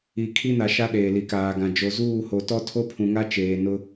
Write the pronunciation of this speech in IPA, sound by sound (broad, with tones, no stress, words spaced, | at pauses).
i˨ kʰi˦na˨ʃa˦ ɗeː˨li˨kaː˨ɡã˨ d͡ʒo˨zuː˦˨ho˨tɔ˦ tʰo˦pʰũ˨ŋa˦ t͡ʃeː˨ nʊ˦